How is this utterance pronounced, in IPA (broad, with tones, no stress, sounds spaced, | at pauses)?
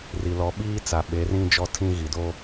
r i˨ l ɔ˨˦ ɓ iː˦ t͡s a˨ ɓ e˨˦ r ĩ˦ d͡ʒ ɔ˦ tʰ ĩ˦ ɣ i˨ d o˦